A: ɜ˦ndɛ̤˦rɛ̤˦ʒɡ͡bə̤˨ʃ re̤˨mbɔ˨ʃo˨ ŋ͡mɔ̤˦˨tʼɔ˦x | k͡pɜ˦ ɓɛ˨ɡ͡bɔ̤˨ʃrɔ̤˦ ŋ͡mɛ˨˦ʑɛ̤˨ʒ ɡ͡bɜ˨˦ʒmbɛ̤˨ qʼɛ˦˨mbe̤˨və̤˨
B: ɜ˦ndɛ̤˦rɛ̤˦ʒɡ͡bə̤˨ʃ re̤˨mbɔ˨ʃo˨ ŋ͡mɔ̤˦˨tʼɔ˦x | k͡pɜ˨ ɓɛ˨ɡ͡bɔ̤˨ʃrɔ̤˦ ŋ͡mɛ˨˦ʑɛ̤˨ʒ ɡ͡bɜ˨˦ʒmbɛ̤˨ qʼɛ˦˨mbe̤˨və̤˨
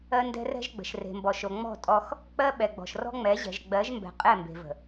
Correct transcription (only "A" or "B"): A